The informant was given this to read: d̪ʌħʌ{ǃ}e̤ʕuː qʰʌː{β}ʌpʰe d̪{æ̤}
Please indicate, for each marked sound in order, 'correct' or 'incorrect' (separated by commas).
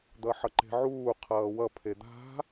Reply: correct, incorrect, incorrect